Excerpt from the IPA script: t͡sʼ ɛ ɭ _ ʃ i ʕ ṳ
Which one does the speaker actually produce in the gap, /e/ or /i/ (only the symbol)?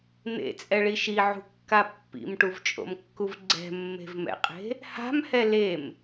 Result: i